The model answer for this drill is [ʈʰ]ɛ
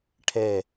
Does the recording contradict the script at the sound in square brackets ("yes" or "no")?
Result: no